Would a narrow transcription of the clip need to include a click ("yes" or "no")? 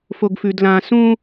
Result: no